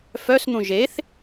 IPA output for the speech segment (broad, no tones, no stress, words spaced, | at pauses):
fœsn̪ũ ʒeθ